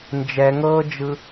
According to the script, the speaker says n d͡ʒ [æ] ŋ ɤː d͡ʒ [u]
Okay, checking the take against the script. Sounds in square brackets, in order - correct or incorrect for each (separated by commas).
incorrect, incorrect